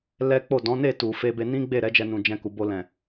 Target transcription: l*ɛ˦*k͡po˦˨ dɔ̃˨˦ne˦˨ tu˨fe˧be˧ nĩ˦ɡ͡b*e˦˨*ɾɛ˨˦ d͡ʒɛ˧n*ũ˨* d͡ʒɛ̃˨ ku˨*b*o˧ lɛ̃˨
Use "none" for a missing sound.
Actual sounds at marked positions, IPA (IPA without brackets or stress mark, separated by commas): ɛ˦, e˦˨, ũ˨, b